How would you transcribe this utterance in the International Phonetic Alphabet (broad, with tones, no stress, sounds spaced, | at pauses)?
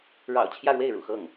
ɻ ɑ̰˨˩ ʊ̯ t͡ɕʰ j ä˥˧ ɻ w e˥˩ ɪ̯ ɻ ṵ˨˩ x ɤ˥˩ ŋ